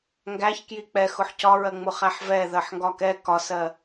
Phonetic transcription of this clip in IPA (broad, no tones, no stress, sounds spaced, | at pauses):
ŋ ɡ æ ç k j i k͡p ɛ x ʊ ħ c ɒ ɹ ɜ ŋ͡m ʊ χ æ ħ v ɛ ð ɜ ħ ŋ ɡ ɒ k ɛ k ɒ s ɜ